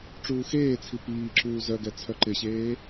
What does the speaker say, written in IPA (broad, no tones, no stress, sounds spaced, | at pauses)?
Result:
ʈ͡ʂ uː x eː t͡sʰ i p iː ǁ uː z œ ɡ ɛ t͡sʰ œ ǃ ɪ ɕ eː